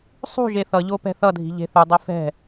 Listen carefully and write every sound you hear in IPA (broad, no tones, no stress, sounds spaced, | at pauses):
sˤ ṳ ʒ e θ ʌ ʎ o p ɛ̤ θ ʌ dʱ i̤ ʎ e̤ θ u dˤ e f ɛ̤